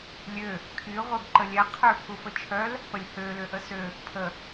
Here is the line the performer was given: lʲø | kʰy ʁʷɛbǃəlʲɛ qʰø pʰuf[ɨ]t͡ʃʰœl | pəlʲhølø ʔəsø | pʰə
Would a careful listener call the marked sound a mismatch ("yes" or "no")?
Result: yes